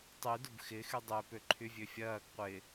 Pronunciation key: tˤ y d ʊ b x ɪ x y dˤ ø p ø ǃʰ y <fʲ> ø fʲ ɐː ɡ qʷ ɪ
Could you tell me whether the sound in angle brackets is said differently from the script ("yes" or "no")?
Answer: yes